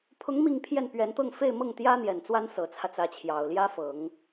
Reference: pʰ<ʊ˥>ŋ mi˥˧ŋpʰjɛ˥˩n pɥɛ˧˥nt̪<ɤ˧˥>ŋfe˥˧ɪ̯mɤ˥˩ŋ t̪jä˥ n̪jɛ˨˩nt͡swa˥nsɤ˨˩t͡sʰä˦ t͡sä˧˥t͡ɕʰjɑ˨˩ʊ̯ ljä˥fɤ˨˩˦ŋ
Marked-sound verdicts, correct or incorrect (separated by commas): incorrect, incorrect